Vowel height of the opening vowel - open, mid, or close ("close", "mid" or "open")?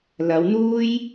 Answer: open